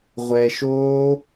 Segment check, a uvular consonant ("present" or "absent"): present